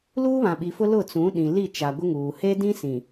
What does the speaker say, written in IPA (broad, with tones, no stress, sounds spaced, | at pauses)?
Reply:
l uː˦ β ã˨ ɓ i˨ f ʊ˦ l ʊ˦˨ t͡s ũ˨˦ ɗ ĩ˨ l i˦˨ t͡ʃ a˨ ɡʷ ɪ˦ ŋ uː˨ h e˦ d ĩ˦ s ĩ˨